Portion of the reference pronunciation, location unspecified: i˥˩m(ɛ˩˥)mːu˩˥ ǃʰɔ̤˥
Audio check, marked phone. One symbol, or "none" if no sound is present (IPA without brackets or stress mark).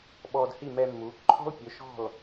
ɛ˧